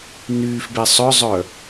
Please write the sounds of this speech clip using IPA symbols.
nyːfbe sˤœzˤœ

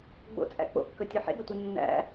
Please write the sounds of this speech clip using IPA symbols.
ɡ͡bo̰t͡sʼæ̰ k͡po̰kːɵtʲɵ ħḛɡɐtʷi nːæ̰

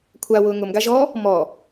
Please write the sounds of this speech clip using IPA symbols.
kʷʰawʊː ŋʊmɡaʒɔ | mɔ

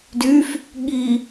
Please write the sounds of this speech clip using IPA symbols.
dyf | ɠi

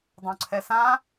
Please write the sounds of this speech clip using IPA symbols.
dˤõǀʰɛsã

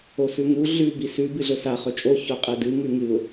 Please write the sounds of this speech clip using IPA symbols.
osʉŋu ɮʉ bisʉ bɨɮɵsa χɵt͡ʃʼo çoqʼedɨ ŋʉŋɨʊ̯

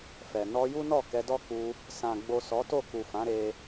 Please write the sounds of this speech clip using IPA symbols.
fɛ˨ nɔ˧ju˦nɔ˦˨ kɛ˧dɔ˦ ku˧ | sã˨ ɡ͡bo˨ sɔ˨˦to˦˨ ku˨fã˨˦ ɾe˧

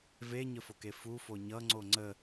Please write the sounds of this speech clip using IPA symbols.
veɲəfoke fufo ɲʌŋ͡ǀo ŋ͡ǀə

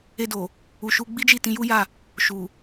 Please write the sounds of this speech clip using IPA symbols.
e˧do˨ | u˨ʃu˧ɡ͡bi˦d͡ʒi˦˨ tĩ˧ju˦ja˦˨ | ʃu˨

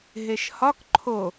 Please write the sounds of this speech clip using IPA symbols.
ɦeʃhɒk ǃʰo

